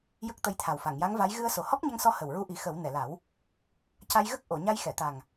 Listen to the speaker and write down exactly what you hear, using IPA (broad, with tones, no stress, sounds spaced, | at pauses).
j ə˦˥ k̚ t̪ ə˧ j t̪ʰ a˨˩ w f a˨˩˨ ŋ j a˧˥ ŋ v a˧˥ j ɣ ɨ˧ ə̯ s o˨˩ h ɔ˦˥ k̚ ɲ ə˧ ŋ s ɔ˧ h ə˨˩ w ɹ u˧ ʔ i˨˩˦ x ə˨˩˦ w n ɛ˨˩˨ l a˨˩˦ w | c a˧ j ɣ ə˦˥ k̚ ʔ o˨˩˨ ɲ a˧ j x ɛ˨˩˨ t̪ a˨˩ ŋ